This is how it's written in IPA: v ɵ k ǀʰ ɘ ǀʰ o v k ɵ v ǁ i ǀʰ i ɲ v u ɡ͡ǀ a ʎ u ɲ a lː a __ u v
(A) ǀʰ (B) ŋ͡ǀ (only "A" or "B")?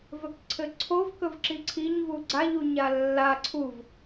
A